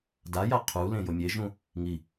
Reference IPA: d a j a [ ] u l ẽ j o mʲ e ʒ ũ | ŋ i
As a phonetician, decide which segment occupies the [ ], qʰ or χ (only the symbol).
qʰ